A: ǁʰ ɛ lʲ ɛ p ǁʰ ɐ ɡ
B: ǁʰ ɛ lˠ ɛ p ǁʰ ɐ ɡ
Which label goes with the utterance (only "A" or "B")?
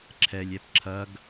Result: A